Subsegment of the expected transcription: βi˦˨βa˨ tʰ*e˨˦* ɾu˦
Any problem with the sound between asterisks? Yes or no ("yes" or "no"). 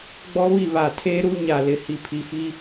yes